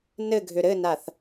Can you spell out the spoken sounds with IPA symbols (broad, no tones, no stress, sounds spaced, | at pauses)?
n ɘ ɡʱ ʏ ɾ ɘ n a θ